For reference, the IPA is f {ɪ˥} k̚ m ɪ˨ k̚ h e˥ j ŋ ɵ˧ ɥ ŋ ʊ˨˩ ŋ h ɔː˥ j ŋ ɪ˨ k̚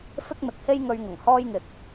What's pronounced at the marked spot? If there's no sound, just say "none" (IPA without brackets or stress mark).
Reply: ɪ˥